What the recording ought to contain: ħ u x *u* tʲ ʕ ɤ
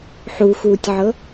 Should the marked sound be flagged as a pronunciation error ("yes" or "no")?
yes